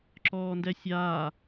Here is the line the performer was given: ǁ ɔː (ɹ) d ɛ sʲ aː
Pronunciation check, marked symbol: incorrect: n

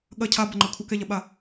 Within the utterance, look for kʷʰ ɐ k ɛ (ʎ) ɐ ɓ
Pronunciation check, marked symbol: correct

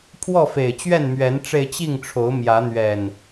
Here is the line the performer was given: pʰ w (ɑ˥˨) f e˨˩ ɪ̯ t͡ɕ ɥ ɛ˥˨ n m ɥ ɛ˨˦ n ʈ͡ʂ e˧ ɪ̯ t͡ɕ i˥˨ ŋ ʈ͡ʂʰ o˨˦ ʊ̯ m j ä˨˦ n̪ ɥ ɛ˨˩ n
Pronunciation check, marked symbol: incorrect: ɔ˥˨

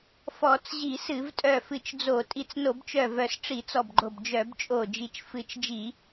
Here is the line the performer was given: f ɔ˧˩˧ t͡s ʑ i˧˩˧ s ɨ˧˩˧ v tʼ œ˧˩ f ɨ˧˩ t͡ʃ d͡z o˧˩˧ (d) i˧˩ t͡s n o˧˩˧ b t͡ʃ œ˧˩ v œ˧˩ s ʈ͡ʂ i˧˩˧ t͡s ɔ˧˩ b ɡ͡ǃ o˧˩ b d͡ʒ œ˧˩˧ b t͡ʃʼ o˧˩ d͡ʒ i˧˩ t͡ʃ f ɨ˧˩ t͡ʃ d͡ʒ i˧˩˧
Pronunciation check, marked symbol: incorrect: tʼ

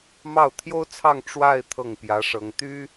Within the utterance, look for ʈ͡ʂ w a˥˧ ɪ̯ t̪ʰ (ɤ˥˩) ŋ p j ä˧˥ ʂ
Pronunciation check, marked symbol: correct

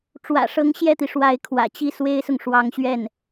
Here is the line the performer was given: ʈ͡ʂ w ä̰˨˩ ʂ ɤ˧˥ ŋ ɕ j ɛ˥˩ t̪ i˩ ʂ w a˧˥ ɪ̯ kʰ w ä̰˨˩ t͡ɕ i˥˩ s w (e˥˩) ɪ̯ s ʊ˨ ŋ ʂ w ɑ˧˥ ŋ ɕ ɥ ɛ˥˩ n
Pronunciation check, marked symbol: incorrect: e˥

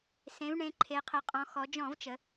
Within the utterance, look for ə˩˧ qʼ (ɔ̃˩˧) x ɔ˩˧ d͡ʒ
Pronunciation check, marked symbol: correct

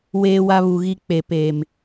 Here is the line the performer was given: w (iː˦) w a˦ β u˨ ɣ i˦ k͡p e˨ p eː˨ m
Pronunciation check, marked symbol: incorrect: eː˦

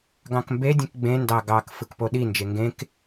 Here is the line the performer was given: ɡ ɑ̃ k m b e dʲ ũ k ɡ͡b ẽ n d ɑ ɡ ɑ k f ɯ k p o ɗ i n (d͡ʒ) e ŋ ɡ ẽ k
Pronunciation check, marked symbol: correct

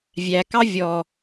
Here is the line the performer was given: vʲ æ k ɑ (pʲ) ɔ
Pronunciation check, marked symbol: incorrect: vʲ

